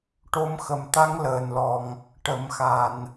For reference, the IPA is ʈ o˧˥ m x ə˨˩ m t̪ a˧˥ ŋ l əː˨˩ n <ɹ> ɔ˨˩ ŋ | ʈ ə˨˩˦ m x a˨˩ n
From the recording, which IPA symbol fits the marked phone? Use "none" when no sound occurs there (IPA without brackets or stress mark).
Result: l